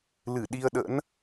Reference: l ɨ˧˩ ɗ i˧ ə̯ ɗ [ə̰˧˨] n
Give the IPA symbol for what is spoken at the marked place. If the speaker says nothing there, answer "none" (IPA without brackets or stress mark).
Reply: ə̰˧˥